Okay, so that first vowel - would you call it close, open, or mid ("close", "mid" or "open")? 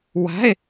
open